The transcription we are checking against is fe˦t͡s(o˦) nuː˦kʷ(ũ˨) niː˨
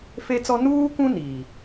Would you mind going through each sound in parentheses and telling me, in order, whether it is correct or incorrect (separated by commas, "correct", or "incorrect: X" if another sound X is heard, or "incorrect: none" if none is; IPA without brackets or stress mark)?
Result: incorrect: ɔ˦, incorrect: ũ˦